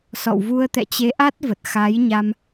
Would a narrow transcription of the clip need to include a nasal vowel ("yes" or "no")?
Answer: no